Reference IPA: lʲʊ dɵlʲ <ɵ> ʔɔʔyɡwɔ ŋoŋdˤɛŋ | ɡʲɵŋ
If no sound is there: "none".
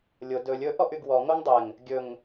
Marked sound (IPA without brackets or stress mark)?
ɵ